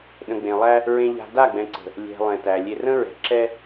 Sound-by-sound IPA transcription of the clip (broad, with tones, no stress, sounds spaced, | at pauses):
ɗ ə̃˨ ɡ͡b ẽ˨ lˠ æ˦ | ɹ ẽ˨ ʎ a̤˨ d a˦˨ ɡ͡b ɛ̃˨ ǀ ə̤˨ | lʲ ɛ̤˨ lˠ ɛ̃˨ t æ˨ lʲ e˨ r ə̃˦ ɹ ɛ̤˨ ǁ ɛ˦